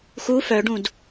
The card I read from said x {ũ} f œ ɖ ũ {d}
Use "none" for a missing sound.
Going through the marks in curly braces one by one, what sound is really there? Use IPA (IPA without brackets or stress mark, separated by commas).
u, d